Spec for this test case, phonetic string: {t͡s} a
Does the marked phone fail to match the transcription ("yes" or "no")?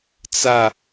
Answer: no